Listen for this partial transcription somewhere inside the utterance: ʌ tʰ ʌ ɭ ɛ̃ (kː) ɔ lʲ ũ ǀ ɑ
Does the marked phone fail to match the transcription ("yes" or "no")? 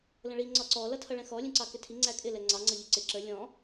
yes